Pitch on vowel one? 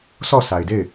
falling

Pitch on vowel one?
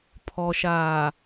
low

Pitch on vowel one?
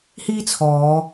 high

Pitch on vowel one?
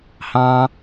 high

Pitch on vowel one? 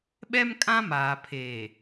high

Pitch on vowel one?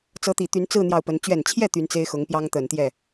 rising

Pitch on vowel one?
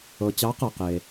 low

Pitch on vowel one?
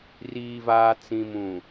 low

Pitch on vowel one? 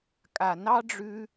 low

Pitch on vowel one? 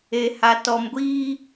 low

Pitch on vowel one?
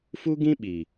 high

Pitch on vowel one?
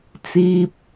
low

